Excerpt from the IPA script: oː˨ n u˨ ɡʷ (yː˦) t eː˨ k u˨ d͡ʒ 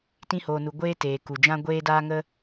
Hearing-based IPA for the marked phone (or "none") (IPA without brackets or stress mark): eː˦